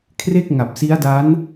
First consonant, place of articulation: velar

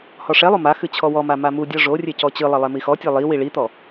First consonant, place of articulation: glottal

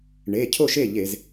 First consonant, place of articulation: retroflex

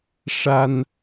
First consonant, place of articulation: retroflex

